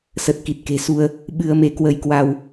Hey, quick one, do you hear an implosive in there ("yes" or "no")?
yes